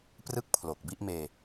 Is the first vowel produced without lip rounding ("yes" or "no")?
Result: yes